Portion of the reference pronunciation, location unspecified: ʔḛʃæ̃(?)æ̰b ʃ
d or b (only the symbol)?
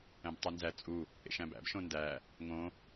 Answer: b